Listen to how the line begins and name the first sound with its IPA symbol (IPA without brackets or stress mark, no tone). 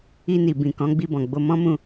i